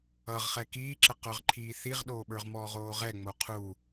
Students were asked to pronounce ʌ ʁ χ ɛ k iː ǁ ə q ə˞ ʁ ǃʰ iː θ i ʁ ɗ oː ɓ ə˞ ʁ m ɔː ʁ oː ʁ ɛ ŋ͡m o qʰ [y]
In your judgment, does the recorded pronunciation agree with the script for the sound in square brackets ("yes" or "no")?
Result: no